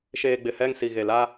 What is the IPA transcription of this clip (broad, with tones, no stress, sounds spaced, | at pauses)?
ʃ eː˨ ɡ͡b ɪ˨ h ɛ˦˨ ŋ s i˨ ɣ e˨ l a˦